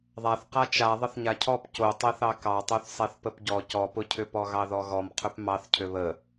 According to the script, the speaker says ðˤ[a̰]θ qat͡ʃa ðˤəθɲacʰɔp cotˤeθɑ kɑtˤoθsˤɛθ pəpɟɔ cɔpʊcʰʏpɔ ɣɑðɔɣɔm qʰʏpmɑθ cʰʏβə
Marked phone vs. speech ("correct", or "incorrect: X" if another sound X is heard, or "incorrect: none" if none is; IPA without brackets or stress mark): incorrect: a